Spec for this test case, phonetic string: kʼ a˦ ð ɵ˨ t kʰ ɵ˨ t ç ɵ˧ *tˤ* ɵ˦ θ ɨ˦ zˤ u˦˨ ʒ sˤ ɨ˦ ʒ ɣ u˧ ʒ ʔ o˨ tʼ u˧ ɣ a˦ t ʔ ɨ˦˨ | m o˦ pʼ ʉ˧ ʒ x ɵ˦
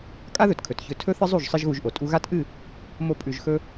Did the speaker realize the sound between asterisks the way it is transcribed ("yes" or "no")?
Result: no